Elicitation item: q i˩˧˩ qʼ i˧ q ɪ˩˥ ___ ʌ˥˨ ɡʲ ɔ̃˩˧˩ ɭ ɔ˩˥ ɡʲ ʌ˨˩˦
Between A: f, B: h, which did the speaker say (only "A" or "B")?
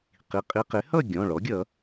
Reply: B